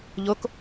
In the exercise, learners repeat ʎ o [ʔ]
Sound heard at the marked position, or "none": k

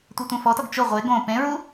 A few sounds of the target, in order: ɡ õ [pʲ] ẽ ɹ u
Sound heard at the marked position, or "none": p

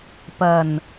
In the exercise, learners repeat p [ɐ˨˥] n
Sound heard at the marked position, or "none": ɐ˨˩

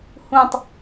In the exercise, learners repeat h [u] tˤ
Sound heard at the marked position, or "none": ũ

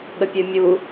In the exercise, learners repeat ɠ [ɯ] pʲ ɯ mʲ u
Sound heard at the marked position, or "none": ə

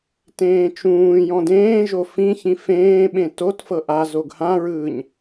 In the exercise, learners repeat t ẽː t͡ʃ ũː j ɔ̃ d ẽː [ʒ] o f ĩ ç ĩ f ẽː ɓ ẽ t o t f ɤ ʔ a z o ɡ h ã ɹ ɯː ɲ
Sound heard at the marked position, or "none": ʒ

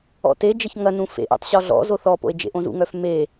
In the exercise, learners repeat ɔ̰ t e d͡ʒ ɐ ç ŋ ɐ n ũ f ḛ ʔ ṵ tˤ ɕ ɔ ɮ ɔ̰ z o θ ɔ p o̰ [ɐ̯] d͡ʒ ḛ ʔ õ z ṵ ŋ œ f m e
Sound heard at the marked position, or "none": e̯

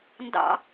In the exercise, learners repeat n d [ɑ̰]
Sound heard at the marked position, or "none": ɑ̰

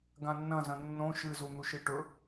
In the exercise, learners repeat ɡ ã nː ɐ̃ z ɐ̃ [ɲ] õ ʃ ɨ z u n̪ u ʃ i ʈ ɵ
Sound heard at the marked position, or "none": nː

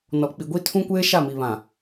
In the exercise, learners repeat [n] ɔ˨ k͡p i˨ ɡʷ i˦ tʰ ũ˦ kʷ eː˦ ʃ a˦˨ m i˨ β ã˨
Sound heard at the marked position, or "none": n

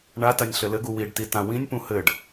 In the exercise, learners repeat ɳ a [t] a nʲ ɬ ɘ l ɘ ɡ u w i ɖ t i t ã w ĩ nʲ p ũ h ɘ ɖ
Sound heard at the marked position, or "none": t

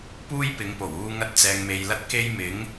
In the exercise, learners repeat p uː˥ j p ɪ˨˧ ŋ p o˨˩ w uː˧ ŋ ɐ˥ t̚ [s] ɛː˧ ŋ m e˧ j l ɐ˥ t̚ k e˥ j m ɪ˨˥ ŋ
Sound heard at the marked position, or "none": t͡s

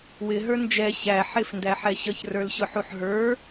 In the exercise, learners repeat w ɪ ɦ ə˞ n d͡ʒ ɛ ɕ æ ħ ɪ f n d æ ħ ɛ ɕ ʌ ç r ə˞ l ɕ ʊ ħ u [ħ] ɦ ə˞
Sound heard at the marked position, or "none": ħ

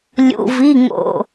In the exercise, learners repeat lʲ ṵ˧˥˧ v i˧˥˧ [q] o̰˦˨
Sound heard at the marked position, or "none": ŋ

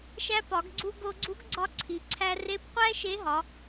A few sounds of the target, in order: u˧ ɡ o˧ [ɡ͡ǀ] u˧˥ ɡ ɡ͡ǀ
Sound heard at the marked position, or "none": ɡ͡ǀ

